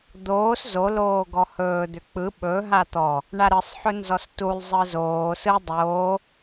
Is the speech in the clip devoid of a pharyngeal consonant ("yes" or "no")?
no